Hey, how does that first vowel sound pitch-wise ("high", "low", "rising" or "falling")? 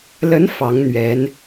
rising